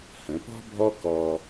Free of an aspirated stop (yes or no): yes